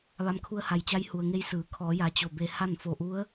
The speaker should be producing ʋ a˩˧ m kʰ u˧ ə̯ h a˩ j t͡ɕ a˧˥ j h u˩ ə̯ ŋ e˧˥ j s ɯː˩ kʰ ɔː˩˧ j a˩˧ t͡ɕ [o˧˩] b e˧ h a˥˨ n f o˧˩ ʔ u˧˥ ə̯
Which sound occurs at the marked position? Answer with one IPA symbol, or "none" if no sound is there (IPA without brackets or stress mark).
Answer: o˧˩